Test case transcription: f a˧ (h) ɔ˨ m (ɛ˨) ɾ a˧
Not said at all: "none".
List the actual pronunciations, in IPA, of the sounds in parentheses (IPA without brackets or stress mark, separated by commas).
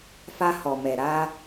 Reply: h, ɛ˨